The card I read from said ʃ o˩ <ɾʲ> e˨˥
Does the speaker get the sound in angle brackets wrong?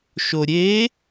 no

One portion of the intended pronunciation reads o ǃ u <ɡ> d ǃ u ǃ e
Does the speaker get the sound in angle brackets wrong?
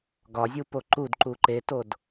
yes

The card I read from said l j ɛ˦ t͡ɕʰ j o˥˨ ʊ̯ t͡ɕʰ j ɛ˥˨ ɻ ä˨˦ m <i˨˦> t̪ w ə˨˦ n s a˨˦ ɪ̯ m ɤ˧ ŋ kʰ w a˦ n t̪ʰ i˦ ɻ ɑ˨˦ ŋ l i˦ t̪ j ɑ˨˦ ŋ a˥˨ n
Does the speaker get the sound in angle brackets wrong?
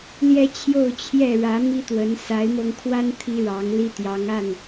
yes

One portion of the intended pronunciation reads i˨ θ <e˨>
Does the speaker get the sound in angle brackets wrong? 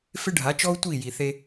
yes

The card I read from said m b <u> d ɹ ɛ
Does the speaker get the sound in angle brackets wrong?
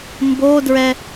yes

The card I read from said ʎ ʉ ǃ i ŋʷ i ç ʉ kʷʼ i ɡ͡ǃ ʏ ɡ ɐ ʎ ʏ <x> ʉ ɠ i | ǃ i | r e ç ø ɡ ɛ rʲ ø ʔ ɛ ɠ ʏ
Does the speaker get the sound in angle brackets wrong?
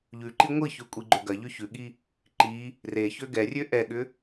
yes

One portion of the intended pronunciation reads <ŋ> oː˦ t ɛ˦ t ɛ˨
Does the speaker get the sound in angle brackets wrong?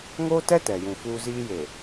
no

